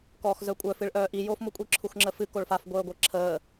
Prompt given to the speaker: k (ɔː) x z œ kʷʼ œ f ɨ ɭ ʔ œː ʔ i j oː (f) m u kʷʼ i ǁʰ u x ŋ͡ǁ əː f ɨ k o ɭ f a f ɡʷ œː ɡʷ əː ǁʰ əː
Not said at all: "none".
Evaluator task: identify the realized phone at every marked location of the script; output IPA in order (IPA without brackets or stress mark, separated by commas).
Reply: ɔː, f